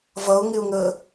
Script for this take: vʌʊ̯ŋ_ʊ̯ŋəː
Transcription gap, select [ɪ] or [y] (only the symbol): ɪ